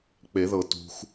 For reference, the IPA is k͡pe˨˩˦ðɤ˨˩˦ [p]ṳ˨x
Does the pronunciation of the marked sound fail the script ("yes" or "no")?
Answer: yes